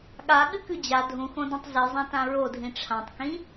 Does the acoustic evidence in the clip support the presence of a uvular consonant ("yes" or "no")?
no